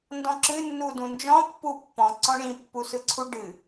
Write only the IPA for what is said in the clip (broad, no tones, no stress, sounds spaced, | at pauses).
n d ɔ̃ ǁ ɨ nː u d ũ n d͡ʒ ɔ̃ pː u pː ɔ̃ ǀ ɔ̃ ɳ ĩ pː u s ɯ ǀʰ u ɖ ɨ